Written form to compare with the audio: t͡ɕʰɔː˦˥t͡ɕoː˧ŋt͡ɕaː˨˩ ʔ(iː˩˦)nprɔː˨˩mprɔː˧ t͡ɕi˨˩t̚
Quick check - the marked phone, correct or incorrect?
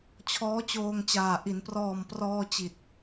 incorrect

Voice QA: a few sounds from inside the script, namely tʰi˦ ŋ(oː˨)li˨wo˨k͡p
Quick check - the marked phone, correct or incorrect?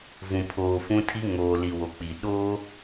correct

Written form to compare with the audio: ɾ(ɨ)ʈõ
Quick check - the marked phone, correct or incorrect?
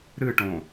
correct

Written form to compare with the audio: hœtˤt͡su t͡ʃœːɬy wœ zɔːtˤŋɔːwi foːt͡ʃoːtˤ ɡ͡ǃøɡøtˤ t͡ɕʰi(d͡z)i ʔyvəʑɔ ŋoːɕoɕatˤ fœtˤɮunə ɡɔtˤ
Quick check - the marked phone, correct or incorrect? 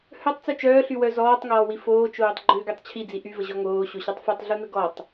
correct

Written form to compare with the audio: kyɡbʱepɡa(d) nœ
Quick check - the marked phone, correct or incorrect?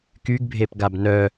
incorrect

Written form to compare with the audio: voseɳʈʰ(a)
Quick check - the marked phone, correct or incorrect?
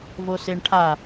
correct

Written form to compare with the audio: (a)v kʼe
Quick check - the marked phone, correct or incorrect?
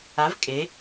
correct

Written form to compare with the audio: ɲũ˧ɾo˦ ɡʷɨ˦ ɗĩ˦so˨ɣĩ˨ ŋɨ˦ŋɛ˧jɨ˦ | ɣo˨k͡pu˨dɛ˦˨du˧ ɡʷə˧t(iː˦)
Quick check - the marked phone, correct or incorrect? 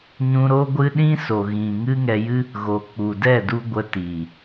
incorrect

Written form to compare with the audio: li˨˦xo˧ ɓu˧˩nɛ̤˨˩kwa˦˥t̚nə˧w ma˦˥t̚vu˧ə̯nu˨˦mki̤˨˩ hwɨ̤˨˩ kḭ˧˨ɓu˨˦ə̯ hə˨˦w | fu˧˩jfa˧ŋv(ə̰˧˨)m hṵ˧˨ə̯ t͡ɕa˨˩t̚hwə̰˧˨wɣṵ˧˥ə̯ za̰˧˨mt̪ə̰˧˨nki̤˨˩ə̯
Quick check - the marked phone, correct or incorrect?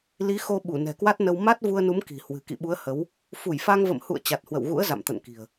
correct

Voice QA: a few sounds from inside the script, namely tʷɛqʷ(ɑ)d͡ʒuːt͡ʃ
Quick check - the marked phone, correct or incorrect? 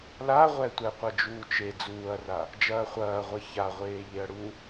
incorrect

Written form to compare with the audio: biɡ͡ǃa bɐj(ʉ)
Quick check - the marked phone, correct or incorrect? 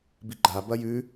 correct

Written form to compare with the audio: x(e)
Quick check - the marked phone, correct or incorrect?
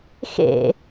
incorrect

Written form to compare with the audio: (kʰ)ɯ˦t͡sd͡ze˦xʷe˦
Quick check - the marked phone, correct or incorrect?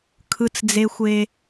correct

